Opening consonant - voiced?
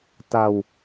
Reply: no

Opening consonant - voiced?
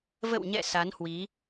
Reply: yes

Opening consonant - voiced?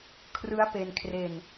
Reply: no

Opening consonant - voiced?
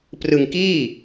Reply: no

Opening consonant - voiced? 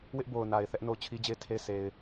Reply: yes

